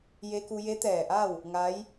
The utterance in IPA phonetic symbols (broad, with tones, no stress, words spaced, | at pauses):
je˧ku˧je˧˥ t̪ɛː˧˩ʔa˥˨w | ŋa˧˥j